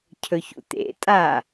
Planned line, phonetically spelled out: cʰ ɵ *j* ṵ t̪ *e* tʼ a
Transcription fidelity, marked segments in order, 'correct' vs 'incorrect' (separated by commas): incorrect, incorrect